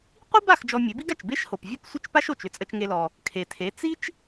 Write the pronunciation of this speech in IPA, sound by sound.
qʷi˥ba˥˩x d͡ʒɔ˧mʲe˩˥bi˥ɡa˩t͡ʃ be˥ʃho˩p vʲe˥˩psʷə˥˩t͡ʃpa˥ʃo˩t͡ʃ ʏ˥t͡sʼə˧t͡ʃŋe˧lɔ˩ | kʰe˩tʰe˩˥ t͡si˥t͡ʃ

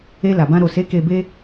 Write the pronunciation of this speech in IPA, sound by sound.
e˧la˨bã˧ ɾo˨se˨˦ ke˧be˦

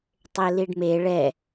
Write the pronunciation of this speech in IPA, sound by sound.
tˤeliɖme ɭɛ

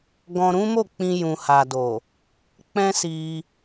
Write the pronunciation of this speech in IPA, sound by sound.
ɡɔ̃˧ɾũ˦mo˦˨ k͡pĩ˧ jũ˨ha˨do˨ | k͡pɛ̃˦si˧

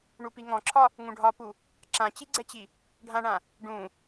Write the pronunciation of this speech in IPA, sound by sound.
ɳupiŋɔ̃ǁʰɒ | ŋũɖʱɒpu | ǁãt͡ɕiɡ͡ǀɛt͡ɕi | ɖʱãɳã | ɖũ

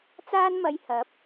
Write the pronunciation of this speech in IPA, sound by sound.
t͡saː˥nmɐ˧j hɐ˨˥p̚

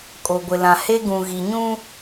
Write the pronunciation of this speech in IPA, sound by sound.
kʼo˨ɡʷɪ˨lã˨ he˦ ɡũ˨ɣi˨ɲũ˦

